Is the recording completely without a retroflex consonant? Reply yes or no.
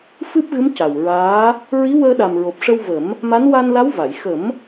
no